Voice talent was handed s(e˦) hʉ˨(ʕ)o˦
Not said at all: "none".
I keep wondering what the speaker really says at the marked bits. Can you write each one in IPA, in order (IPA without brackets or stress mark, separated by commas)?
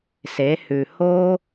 e˨˦, h